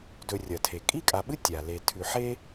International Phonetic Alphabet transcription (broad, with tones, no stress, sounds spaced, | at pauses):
d ɵ˨ rʲ ɐ˩ tʰ e˩ kʼ i˥ kʼ a˨ ɓ ɨ˥ tʲ a˩ l e˨ tʰ ʉ˨ ħ e˥